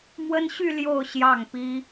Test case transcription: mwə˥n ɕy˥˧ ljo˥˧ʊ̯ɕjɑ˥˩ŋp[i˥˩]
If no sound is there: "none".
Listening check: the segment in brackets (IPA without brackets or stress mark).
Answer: i˥